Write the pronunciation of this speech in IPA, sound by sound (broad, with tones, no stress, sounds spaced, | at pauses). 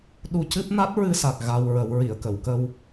ɗ u˧ c ɨ˦˥ p̚ n a˦˥ t̚ ɹ ɨ˧ s a˨˩ k̚ ɣ a˧ w ɹ ə˨˩˦ w ɹ i˨˩˨ ə̯ k ə˨˩˨ w k ə˧ w